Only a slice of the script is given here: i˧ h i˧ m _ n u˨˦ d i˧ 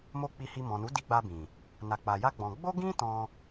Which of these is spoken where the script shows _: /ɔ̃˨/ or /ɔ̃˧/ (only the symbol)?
ɔ̃˨